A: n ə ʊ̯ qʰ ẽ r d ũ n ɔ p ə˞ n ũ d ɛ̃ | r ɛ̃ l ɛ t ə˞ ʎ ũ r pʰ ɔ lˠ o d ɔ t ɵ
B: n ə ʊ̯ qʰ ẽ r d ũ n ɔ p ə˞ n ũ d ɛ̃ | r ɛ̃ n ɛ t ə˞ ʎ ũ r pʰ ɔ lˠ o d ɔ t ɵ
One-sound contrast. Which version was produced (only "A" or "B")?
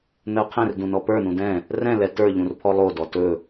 A